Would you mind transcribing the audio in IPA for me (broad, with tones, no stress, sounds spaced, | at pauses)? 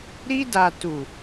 ɾ i˧ d a˨ t u˨